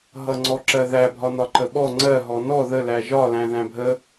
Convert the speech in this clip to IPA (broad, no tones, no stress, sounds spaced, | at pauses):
ɦ ʌ ŋ͡ǀ ɔ ǁ ɜ ð æ bʱ ɒ n ɒ ǃ ə ɓ ɔ ŋ͡ǀ ɜ ɦ ɔ n ɔ ð ə l æ ʒ ɒ l æ̃ ð æ̃ bʱ ə